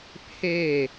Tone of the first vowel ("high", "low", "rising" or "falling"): falling